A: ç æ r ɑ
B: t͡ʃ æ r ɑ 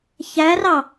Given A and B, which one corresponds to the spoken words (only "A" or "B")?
A